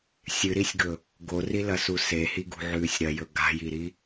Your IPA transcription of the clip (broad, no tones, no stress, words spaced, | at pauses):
sʲɨɾisʲɡɵ | ɡorilɐsu sehiɡṳʕʉːsʲ ɾɐjɵ ɡa̤jiɾi